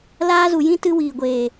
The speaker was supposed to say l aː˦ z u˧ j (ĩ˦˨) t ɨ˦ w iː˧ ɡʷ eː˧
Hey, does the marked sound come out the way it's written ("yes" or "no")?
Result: no